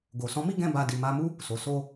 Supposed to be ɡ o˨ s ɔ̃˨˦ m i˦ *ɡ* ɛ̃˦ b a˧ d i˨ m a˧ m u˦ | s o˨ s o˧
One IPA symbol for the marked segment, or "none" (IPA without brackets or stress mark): ɡ